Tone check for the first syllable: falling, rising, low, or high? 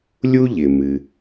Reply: high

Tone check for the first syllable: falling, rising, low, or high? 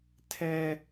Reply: high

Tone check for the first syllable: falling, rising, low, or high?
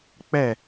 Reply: falling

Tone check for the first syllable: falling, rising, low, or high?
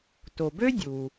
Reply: low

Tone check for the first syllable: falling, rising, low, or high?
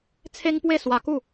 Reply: high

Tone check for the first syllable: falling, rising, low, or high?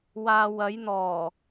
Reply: low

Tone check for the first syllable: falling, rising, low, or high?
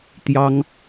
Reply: high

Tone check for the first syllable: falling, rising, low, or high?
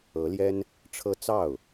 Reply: rising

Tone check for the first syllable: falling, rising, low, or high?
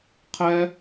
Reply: high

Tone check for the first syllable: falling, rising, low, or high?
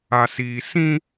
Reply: low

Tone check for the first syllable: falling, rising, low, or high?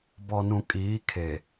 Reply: low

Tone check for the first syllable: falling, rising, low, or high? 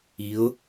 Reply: rising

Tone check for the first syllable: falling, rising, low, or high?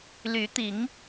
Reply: rising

